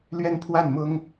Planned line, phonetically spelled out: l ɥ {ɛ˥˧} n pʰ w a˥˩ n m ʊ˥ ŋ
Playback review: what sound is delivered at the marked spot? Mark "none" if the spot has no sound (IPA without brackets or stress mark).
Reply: ɛ˥˧